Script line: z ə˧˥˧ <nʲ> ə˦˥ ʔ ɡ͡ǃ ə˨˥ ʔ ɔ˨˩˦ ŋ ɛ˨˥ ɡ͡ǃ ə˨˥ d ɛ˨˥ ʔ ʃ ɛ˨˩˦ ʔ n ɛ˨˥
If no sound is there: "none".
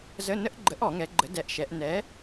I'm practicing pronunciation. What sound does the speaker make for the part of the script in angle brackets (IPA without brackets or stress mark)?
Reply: n